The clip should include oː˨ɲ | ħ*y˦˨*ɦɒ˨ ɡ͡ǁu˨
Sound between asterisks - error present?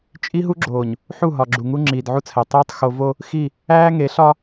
yes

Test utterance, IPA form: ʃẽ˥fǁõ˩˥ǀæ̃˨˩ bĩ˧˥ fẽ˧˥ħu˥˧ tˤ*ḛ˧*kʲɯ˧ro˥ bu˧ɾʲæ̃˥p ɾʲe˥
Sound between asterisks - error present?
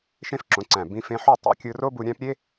no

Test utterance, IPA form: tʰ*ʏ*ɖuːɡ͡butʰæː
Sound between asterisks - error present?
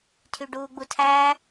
yes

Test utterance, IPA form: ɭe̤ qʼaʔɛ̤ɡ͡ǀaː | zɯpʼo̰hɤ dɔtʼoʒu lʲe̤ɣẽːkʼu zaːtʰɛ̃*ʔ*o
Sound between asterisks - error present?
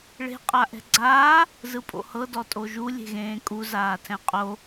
yes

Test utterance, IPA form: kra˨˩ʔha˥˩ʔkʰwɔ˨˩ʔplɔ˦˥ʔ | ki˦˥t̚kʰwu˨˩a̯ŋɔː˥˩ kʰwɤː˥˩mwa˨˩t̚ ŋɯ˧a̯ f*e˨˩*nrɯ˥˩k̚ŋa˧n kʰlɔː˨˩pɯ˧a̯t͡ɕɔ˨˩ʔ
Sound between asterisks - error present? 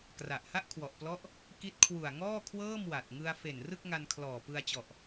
no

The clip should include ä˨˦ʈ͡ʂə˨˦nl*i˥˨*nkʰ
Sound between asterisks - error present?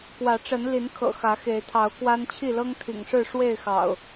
yes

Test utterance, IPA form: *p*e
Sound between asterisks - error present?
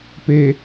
no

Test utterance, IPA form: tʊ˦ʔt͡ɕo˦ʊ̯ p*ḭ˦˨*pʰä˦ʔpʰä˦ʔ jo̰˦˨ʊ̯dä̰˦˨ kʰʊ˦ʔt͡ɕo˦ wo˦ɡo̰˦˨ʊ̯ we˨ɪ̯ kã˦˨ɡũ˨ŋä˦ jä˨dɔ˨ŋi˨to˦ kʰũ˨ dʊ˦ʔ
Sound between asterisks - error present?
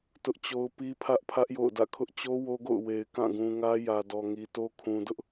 yes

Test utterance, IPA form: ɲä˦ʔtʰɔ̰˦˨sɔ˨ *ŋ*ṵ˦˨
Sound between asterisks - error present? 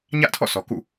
yes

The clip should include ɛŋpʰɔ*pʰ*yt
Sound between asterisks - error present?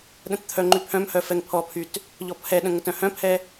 no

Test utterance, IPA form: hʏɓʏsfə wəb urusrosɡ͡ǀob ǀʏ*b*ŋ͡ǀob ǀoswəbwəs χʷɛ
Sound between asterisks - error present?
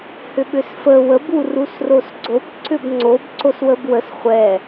no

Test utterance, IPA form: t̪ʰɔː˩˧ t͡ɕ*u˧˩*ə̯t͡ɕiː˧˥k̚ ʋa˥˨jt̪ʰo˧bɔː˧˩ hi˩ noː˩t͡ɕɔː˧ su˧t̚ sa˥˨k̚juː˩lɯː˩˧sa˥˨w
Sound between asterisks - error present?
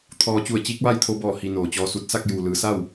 no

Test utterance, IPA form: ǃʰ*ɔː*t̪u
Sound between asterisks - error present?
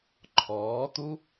no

